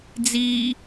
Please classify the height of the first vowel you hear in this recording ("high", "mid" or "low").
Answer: high